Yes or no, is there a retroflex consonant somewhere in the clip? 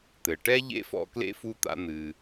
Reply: yes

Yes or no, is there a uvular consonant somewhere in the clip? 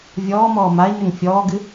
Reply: no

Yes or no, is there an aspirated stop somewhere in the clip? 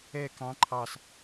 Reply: yes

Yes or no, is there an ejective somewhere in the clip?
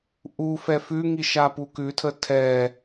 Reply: no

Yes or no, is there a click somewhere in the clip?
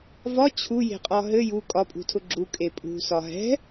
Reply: yes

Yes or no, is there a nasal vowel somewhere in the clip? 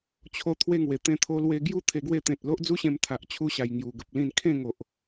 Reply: yes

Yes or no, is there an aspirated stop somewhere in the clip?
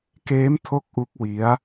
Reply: yes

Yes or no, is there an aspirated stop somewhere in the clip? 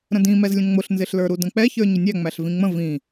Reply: no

